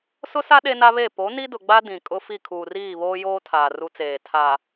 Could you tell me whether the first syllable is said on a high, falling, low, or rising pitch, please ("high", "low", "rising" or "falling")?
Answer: high